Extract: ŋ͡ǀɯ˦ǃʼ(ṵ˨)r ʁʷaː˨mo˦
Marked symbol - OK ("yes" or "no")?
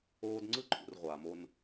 yes